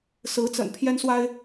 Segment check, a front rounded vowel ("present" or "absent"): absent